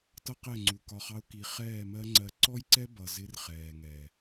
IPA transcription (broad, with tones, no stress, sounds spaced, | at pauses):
t ʌ˦ q ɛ˦˨ ŋ͡ǀ u˨ k ɒ˧ χ ɑ˦ ʊ̯ k i˧ χ ɛː˦˨ m ɜ˦ ŋ͡ǀ ɜ˧ ǀ ɔ˦ j ǀ ɛ˦ b ʌ˨ z ɪ˦ r χ ɛː˨ ŋ ɛ˨